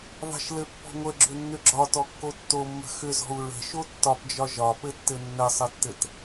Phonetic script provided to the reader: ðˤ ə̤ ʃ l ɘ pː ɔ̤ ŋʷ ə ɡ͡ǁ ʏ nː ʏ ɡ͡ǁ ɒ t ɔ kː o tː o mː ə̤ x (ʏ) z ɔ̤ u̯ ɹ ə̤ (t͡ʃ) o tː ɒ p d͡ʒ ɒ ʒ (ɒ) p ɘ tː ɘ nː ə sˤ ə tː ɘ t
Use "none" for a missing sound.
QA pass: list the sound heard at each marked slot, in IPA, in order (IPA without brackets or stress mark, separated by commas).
ʏ, ʃ, ɒ